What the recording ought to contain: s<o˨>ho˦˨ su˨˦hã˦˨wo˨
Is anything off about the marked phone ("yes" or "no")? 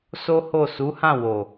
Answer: yes